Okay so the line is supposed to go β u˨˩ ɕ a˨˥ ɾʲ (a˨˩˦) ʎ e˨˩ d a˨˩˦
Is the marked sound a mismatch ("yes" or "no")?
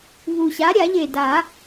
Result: no